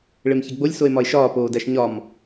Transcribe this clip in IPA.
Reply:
ɭ e m ç e ɡ͡b o lʲ s o e̯ m ɒ e̯ ʃ ɒː p oː d æ ʃ ɲ ɒ m

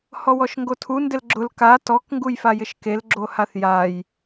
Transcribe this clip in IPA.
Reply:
h ɔ w ɔ ʃ ŋ ɡ o tʰ u n d ɪ l ɡ͡ǁ ʊ l k a t ɔ k ŋ ɡ u j f a j ɪ ʃ k e l ɡ͡ǁ o h a θ j a j

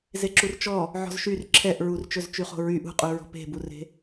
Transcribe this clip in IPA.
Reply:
z e ǁ u r t͡ʃ ɔ | ʕ ɔ̤ z ʃ y r ǁʰ ɛ ʔ ɹ u r t͡ʃ ɵ z t͡ʃ y χ o̤ ɹ y ʔ ṳ qʼ u ɹ ɔ̤ p e̤ b u r e̤

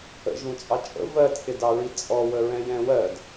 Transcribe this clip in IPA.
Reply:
ə̰ ʒ ũ t͡sʼ ɑ t͡ʃʼ ə̰ v ɜ tʰ ɪ d ɑ ɹ i t͡sʼ ɔ w ə ɹ ɛ̃ j ɛ̃ w ɜ d

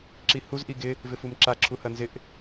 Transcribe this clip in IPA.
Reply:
ǁ i h u z ʔ i ɡ ɪ | v ɪ f u m ǁ a ǁʰ u h ɐ n z ɪ ʔ

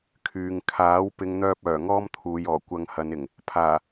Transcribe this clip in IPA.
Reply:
kʰ yː˨ ŋ kʰ aː˨˥ w p ɪ˨˧ ŋ n̪ œː˧ p̚ œː˨˩ ŋ ɔː˥ m t̪ʰ uː˨˧ j ɔː˨˩ kʷ ɐ˧ ŋ h ɐ˨˧ n ɪ˨˩ ŋ | pʰ aː˨˩

